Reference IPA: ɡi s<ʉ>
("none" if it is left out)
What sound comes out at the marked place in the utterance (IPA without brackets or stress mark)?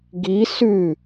ʉ